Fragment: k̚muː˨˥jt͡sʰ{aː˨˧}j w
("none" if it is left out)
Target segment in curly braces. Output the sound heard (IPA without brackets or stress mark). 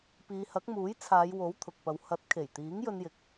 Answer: aː˨˧